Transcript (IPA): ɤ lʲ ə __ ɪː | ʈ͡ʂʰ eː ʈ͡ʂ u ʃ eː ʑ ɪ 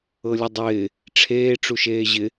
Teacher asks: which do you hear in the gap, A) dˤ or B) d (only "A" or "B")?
A